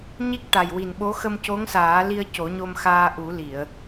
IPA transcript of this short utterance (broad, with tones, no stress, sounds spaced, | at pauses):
ɲ i˦˥ k̚ ʈ a˨˩ j w i˨˩ n ɓ o˧˥ x ə˧ m c o˧˥ ŋ s aː˨˩˦ l i˧ ə̯ c o˨˩˦ ɲ o˧ m x aː˧ ʔ u˨˩˦ l i˨˩˨ ə̯